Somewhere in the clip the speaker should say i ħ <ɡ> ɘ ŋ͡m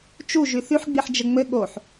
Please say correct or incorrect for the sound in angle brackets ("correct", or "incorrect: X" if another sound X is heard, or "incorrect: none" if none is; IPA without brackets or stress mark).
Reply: incorrect: d͡ʒ